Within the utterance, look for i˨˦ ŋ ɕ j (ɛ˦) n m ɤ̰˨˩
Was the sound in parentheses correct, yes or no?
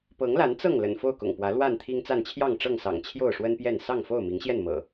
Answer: no